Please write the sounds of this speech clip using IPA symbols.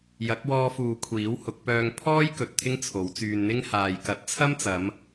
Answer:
jɐ˨˥k̚wɔː˧fuː˨ kʷʰiː˨˥whʊ˨˥k̚pœː˧ŋ pʰɔː˥jkɵ˨t̚ t̪ʰɪ˥ŋt͡sʰo˨˥wt͡syː˧nn̪ɪ˥ŋ haː˨jkɐ˨˥t̚t͡sʰɐ˥mt͡sɐ˨˧m

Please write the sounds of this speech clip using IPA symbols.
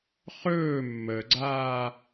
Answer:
χɵː mːəɡ͡ǀaː

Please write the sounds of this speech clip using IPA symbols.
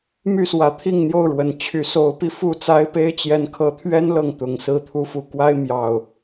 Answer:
my˥˨swä˨˦t̪ʰi˥˨ŋn̪jo˥˨ʊ̯ ɻwə˨˩nt͡ɕʰy˨˦so˨˦ʊ̯pi˧ fu˥˨t͡sa˦ɪ̯pe˦ɪ̯ t͡ɕjɛ˨˦nkʰɤ˨˦t̪ʰɥɛ˦n lɤ˥˨ŋt̪ʊ˨˩ŋsɹ̩˥˨ t̪ʰu˨˦fu˨˩ kwa˦ɪ̯mjɑ˨˩ʊ̯

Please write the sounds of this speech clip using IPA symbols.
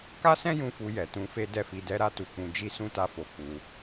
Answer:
ka˦sɛ̃˦jũ˧ fu˧jɛ˨tũ˧fe˦ dɛ˦˨fi˧dɛ˦ ɾa˦tu˧k͡pũ˧ d͡ʒi˦sũ˦ta˦˨fo˧ k͡pu˧

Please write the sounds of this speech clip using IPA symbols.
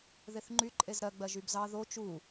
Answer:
ðeθŋ͡ǃy ǃʼezɾɜ ɡ͡bɜʒybzɑ ðo t͡ʃu

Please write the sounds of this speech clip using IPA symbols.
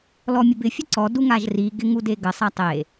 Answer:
lɔmʲəbɪ fʲəǀɔ duŋaʒri ɡɪŋudeɡə sˤatˤe

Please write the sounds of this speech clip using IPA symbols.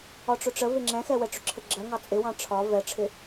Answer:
ɒʈ͡ʂʊʈ͡ʂə vɪŋ͡ǁɛ̃xɛwɛ ʈ͡ʂʊǁʰəɡ͡ǁɜ ŋɑt͡sʼɪwɑ̃ ʈ͡ʂʰɒ vɛʈ͡ʂʰɪ

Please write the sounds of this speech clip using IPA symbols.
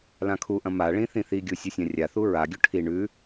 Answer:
lãkʰuʔɐ̃ maɭĩ θĩθiɡʲu sʲɵsʲãrʲaθu ɹaɡʲu ʈʰi ɳʉ

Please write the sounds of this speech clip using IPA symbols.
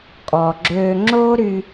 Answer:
kʼɔ˨ɡ͡ǁøː˧ ŋ͡ǁoː˦ɾy˧

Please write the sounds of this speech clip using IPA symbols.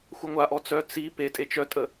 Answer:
xʷœŋʷaʔɔ t͡sœ t͡si petʼe t͡ʃœtʼə

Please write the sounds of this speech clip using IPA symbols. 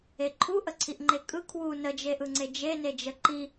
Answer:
eǃʰu ʔəǀʰiʔŋ͡ǃekʼɯ kʰwu nəd͡ʒeʔɯŋ͡ǀe d͡ʒened͡ʒə ǃi

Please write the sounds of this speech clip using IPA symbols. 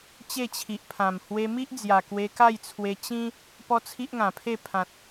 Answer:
t͡ɕe˥˧t͡ɕʰi˨ʔpʰã˨˩m hwe˧mi˦ʔd͡zja˨˩ kwe˧ka˥˧jt͡sʰwe˧ t͡ɕĩ˦ | pɔ˦t͡sʰi˦ʔŋã˨˩pʰe˥˧ pʰã˨t̚

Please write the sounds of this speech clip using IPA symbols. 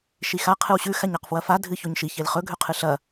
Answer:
ʃixa qʰɨwɕʉ xaɲaqfwɐfa dʱɨçoɲʃi çelχɵ ɡʱʉqʰɨɬɐ

